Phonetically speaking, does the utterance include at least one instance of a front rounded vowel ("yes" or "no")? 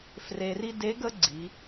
no